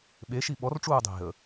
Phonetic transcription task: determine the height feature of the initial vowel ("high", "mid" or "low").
mid